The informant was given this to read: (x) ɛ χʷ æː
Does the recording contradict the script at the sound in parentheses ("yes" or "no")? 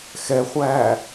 no